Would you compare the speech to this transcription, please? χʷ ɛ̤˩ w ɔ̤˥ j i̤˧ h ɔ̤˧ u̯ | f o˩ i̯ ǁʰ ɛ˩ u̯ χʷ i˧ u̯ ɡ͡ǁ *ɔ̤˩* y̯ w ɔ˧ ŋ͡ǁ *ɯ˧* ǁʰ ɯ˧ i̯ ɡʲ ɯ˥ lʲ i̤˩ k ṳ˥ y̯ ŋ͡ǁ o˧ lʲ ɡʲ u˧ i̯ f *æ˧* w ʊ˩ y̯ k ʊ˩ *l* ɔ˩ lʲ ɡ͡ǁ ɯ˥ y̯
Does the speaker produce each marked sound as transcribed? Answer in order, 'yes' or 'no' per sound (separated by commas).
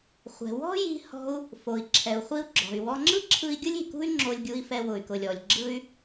yes, no, no, no